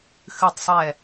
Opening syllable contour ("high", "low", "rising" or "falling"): falling